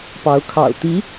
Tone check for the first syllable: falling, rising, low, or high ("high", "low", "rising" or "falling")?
rising